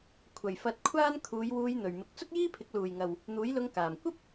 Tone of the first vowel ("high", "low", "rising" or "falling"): low